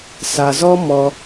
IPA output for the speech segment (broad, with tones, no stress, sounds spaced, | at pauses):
s a˧ z ɔ˦ m ɔ˦